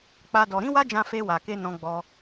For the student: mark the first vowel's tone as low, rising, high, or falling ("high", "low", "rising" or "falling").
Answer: high